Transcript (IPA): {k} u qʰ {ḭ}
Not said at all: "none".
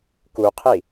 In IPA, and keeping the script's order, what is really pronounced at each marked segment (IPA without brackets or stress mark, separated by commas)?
k, i